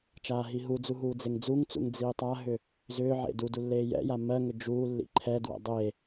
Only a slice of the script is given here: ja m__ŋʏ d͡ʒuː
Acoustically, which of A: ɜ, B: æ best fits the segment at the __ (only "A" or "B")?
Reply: A